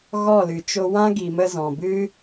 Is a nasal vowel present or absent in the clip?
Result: present